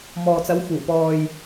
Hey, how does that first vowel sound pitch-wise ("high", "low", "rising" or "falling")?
low